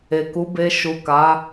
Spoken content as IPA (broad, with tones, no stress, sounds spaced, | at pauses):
e˨ k u˨˦ b e˧ ʃ u˨ k a˨˦